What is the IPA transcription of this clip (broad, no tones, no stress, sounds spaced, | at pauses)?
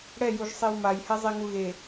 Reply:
ɽ ɛ j u ʒ sˤ i w m a j h ɛ zˤ i ŋ u ɣ e